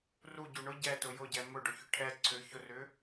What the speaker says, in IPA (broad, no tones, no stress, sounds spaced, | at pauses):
r u ɟ u ɳ ʊ ɟ ɛ t ʊ j ʊ ɟ ɛ m ʊ ɖ ʊ ç ʏ ʈʰ ɛ ǀʰ ʏ ç ʊ r ʏ